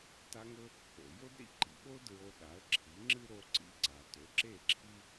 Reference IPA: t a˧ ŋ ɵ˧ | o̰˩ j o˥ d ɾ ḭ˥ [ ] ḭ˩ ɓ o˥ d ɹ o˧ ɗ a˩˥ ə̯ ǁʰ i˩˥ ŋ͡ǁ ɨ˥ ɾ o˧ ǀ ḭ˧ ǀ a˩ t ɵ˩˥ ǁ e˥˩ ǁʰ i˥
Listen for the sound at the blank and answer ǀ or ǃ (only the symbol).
ǃ